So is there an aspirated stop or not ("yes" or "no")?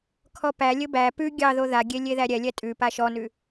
yes